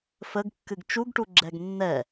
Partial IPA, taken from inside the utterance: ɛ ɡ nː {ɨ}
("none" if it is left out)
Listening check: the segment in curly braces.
ɛ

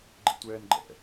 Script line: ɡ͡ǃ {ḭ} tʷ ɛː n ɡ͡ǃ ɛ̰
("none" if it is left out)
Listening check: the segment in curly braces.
ḭ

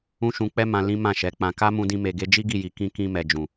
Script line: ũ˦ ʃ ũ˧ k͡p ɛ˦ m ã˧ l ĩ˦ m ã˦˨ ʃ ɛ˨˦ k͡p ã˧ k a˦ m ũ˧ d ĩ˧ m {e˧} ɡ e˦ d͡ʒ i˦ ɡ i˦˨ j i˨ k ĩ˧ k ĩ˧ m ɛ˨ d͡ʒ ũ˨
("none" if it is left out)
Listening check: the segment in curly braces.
e˧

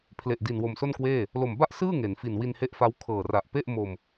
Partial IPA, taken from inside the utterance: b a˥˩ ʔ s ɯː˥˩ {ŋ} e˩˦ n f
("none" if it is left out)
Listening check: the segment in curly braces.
ŋ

